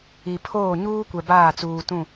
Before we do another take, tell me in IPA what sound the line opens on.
i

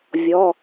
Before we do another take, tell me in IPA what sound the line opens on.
vʲ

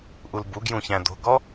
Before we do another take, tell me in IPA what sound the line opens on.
ʔ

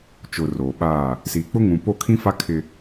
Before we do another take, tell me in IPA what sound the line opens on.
t͡ʃ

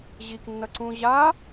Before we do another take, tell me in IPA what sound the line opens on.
ʑ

